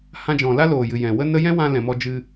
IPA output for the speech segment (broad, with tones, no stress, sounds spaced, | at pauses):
h ã˧ d͡ʒ ɔ̃˨ l a˦ l oː˨ j ɨ˨ j ɛ̃˨ w ə˦ n ə˦ j ɛ̃˦ w ã˧ l ɛ̃˨ m ɔ˧ d͡ʒ ɨ˧